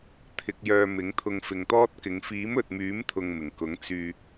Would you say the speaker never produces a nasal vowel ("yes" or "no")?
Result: yes